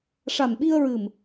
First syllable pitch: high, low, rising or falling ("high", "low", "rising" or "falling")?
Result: low